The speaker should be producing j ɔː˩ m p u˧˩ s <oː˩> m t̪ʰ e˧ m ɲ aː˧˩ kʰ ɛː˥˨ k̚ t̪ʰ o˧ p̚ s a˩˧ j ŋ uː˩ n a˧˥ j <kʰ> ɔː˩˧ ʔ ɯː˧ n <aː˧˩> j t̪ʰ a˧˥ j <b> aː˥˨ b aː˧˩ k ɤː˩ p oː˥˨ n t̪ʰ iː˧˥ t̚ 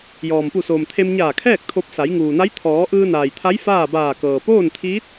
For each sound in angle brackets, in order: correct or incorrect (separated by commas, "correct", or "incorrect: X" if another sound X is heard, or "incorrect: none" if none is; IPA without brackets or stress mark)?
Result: correct, incorrect: t̪ʰ, incorrect: aː˩, incorrect: f